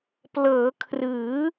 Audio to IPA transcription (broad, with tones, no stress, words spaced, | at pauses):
plɤː˩˦kʰrɯː˩˦